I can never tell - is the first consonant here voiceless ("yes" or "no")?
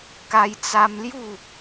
yes